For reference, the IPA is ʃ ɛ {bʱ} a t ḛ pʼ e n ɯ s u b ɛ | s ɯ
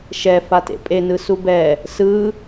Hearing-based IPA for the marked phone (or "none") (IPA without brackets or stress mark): f